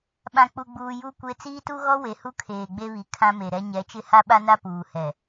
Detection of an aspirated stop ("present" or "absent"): present